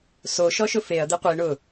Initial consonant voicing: voiceless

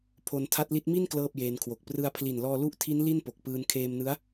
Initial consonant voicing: voiceless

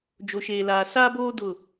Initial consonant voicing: voiced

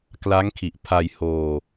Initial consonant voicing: voiceless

